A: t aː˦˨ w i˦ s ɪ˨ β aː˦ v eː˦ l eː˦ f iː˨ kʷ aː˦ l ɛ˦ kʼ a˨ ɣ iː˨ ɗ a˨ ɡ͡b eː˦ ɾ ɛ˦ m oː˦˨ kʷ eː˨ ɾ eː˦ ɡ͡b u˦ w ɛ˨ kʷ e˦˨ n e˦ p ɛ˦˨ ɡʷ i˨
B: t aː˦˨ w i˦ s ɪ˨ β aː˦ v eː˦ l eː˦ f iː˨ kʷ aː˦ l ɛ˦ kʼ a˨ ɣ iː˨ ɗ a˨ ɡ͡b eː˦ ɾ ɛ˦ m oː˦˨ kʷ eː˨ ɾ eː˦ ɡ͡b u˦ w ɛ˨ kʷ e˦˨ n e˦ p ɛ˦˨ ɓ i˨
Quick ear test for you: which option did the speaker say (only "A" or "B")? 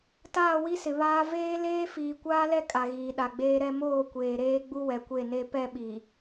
B